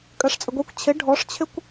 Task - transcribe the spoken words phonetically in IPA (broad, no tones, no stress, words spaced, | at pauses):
kʼɜʂt͡sʼəɡʷikʷ t͡ɕʰɪ ɖʱɔʂt͡ɕʰɪkʷ